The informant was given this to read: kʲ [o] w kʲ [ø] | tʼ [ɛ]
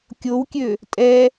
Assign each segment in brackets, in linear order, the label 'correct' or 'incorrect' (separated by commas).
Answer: correct, correct, correct